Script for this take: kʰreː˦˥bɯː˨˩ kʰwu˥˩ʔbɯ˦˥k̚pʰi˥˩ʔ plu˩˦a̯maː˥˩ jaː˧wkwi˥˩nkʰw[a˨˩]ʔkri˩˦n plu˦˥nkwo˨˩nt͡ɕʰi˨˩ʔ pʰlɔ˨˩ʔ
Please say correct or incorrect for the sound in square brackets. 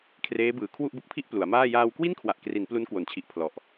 correct